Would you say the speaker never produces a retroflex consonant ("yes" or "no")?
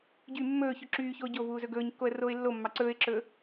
yes